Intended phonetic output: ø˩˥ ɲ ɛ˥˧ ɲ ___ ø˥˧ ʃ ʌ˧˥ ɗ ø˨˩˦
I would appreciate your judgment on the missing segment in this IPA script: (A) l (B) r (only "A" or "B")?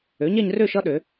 B